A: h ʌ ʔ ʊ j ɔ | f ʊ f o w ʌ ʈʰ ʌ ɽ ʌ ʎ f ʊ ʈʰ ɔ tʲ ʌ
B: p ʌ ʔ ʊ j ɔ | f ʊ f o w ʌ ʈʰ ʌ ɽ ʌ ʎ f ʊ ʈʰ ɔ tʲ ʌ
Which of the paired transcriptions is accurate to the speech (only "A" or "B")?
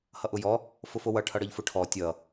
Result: A